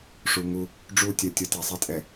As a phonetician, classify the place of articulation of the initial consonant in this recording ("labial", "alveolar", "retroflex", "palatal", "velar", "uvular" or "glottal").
retroflex